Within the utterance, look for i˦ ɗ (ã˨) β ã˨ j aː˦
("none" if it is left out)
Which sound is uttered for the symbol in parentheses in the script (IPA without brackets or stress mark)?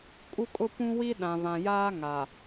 ã˨